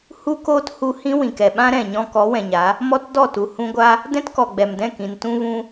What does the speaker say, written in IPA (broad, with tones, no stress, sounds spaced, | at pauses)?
h u˦ k oː˦ t h u˧ h ĩ˦ w ĩ˨ k ɛ˨ ɓ ã˦ ɾ ɛ̃˨ ɲ ɔ̃˧ k ɔ˨˦ w ɛ̃˨ ɲ a˨˦ | m ɔ˦ t d ɔ˦˨ t u˨ h ũ˧ ɡʷ a˦ | d ɛ̃˦ t k ɔ˨ ɡ͡b ɛ˨ m d ɛ̃˦˨ k ĩ˨ n t ũ˧ v ũ˧